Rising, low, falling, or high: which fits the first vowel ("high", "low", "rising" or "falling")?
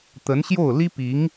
rising